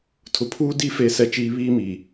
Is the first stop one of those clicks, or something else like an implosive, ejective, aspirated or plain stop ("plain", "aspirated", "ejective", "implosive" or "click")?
aspirated